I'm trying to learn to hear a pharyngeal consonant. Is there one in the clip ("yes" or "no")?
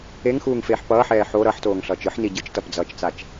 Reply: yes